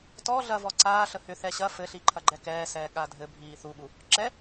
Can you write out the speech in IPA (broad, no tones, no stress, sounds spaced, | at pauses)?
t ɔ ɮ ɐ v ɔ ǀ aː ɬ ə h ʏ θ ɛ ɕ ɐ f ɘ ɬ i ǃʰ ɐ ɡ͡ǃ ɛ k ɛː s ɛː ɠ a dʱ ɘ bʱ iː θ u ɠ u | ǁ ɛ